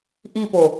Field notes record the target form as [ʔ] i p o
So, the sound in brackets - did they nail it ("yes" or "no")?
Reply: yes